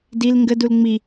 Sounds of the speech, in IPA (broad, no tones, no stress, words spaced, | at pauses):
dil ŋɡədul ŋ͡mi